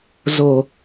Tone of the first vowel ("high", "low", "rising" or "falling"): low